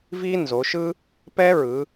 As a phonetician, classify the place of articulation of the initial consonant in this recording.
labial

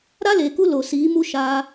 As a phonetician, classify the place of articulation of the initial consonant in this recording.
alveolar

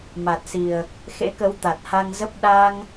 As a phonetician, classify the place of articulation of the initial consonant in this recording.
labial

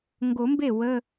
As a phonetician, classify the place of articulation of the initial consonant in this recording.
velar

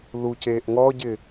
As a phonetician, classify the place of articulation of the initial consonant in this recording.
alveolar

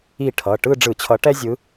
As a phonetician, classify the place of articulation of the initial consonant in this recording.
retroflex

